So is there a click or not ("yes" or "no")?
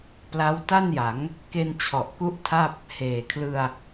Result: no